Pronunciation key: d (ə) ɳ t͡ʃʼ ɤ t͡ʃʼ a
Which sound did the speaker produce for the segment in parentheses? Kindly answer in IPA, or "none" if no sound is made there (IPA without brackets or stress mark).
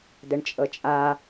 ə